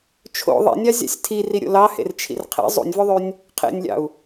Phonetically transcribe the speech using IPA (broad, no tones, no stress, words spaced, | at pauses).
t͡ʃʰo̰ ðˤḛnʲɑ zʲɑ̰sʲtʰi riɾʲo̰lɑhḛr t͡ʃʰḭrqʰḛ zˤṵnʲvøðˤynʲ | qʰḛnʲlʲɑ̰u̯